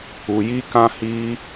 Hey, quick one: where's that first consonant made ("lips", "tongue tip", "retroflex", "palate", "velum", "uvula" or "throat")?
palate